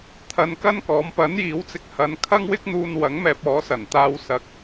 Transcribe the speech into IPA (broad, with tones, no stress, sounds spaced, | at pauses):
t̪ʰ ɐ˧ n k ɐ˥ n k ɔː˨˥ m p ɐ˨˥ n j iː˨˥ w t͡s ɪ˨ k̚ h ɐ˨˧ n kʰ ɐ˥ ŋ w ɪ˥ k̚ n̪ uː˧ n w ɐ˨˥ ŋ m ɛː˧ p̚ ɔː˨˥ s ɐ˨˩ n t̪ aː˧ w s ɐ˨˥ k̚